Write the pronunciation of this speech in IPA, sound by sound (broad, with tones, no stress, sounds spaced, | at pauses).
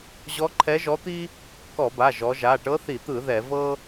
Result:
ʑ ɔ˧˥ ǃʰ ɛ˧˥ ʒ ɔ˧˥ t̪ i˥ | k ɔ˧˩˧ b a˩˧˩ ʒ ɔ˩˧ ʒ a˩˧˩ ʈ ɤ˧˥ θ i˧˩˧ t̪ ɯ˧˩˧ ð ɛ˧˩˧ v ɤ˥